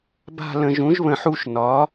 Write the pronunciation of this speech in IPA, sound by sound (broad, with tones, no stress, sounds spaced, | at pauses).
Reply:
b a̤˦˨ l ə̃˨ ʒ ũ˩˥ ʒ β ə̃˨ ħ u˦˨ ʃ n ɒ˩˥